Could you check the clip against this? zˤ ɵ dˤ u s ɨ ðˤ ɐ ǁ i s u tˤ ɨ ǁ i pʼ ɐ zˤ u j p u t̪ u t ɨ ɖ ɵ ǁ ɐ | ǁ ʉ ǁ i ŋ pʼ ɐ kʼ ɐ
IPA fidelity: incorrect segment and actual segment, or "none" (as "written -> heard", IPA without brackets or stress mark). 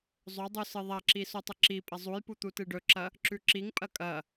none